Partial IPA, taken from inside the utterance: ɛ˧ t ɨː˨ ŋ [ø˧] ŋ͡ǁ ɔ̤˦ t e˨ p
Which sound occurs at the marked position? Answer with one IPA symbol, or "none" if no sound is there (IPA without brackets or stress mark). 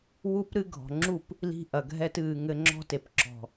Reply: ɘ˧